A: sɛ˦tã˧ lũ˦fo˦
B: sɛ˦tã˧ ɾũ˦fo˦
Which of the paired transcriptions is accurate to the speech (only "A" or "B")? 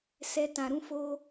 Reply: B